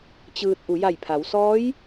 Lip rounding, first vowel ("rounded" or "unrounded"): unrounded